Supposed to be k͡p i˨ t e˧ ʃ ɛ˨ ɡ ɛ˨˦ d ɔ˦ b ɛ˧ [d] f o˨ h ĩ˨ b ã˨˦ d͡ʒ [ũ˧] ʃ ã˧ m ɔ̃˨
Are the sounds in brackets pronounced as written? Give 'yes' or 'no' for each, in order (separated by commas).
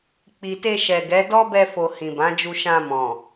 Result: no, no